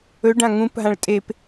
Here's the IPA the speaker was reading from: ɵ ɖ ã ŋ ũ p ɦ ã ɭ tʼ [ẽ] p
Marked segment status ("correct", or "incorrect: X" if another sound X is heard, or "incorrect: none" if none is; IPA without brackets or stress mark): incorrect: e